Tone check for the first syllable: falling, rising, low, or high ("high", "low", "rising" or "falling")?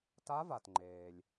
rising